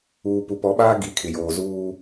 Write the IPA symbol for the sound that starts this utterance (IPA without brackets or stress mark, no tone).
uː